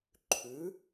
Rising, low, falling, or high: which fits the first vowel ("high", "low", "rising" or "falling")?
rising